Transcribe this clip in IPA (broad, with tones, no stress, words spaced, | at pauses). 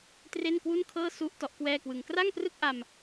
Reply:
tre˥˩nkwu˥˩nkʰɤː˥˩ su˦˥ʔ tɔ˦˥ʔkwɛː˥˩kwɯ˧ŋ kra˥˩ŋprɯ˥˩k̚ʔa˧m